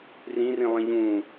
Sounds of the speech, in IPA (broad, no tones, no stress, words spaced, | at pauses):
rĩrĩlˠĩ ʎũ